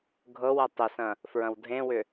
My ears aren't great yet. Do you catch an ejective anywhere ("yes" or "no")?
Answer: no